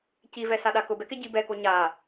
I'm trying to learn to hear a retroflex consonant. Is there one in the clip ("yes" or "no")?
no